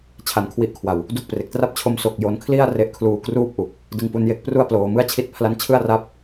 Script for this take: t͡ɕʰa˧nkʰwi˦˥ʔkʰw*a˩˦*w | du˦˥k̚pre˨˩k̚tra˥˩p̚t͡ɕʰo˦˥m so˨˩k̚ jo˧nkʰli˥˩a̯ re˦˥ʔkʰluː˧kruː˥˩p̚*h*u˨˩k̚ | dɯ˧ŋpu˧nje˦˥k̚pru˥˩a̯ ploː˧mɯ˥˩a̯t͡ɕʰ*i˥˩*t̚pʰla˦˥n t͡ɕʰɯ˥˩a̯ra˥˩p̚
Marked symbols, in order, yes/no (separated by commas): no, no, yes